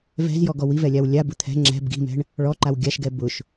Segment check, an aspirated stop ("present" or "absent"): present